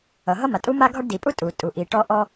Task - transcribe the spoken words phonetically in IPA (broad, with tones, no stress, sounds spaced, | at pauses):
ʌ˩ ɦ ʌ˥ m a˩ tʼ u˥ m a˥ ɡʱ ɒ˥ ɖ d i˩ pʼ u˥ tʼ u˩ tʼ u˩ ʔ i˩ ʈ ɔ˥ ʔ ɔ˥